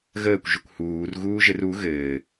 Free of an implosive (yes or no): yes